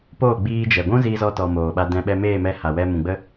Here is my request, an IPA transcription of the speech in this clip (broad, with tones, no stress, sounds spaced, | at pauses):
p oː˦˨ ɡ͡b iː˧ d͡ʒ ɛ˨ ɡʷ ũ˦ z i˧ z ɔ˧ t ɔ˨ m oː˨ ɓ a˧ d ɛ̃˧ ɓ ɛ˧ m eː˦˨ m ɛ˧ h a˨ w ɛ˧ m ũ˨ ɡ͡b ə˦